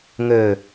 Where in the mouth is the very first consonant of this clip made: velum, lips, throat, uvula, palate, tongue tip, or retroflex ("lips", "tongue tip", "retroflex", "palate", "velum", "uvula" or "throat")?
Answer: velum